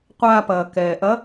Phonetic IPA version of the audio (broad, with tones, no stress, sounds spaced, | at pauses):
qʷ aː˧ p ɐː˩ k ɛː˩ ʔ ɐ˧˥